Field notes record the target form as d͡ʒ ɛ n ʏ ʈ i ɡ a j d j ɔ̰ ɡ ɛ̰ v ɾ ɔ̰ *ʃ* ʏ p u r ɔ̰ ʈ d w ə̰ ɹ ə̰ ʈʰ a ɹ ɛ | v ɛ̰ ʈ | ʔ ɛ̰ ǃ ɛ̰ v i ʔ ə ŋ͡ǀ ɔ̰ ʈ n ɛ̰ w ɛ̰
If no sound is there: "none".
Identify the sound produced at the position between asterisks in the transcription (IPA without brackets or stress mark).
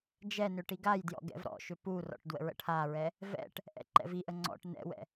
ʃ